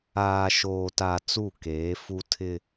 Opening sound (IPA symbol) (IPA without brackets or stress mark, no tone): aː